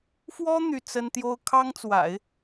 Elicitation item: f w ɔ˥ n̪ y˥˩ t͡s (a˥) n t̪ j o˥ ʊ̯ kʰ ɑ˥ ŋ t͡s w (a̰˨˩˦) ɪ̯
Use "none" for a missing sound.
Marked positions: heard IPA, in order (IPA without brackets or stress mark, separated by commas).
ə˥, a̰˨˩˦